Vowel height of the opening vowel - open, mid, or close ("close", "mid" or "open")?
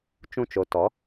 close